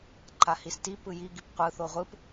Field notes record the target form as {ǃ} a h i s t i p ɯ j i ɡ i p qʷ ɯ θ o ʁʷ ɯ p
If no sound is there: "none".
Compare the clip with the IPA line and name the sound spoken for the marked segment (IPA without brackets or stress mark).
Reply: ǃ